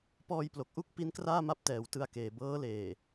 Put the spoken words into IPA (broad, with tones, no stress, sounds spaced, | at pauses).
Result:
p ɔː˧ j p l o˨˩ k̚ ʔ u˥˩ k̚ p i˦˥ n k r aː˥˩ m a˦˥ p̚ t ɛː˨˩ w t ɯ˧ a̯ k eː˨˩ b ɤː˦˥ l eː˨˩